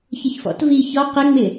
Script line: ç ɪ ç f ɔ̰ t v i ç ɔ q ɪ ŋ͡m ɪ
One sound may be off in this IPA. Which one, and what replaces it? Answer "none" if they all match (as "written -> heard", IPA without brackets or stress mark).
none